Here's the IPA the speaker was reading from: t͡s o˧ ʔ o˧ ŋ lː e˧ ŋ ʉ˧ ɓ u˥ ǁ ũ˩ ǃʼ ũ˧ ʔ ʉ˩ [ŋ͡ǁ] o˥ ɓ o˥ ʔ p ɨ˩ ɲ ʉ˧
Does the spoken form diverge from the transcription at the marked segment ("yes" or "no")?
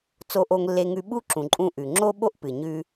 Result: no